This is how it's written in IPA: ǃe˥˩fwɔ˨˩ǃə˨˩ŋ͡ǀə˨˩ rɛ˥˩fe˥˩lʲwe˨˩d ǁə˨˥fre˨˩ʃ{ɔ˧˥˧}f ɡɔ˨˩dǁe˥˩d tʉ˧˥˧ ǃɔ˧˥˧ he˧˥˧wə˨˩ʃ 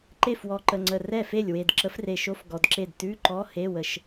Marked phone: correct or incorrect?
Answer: incorrect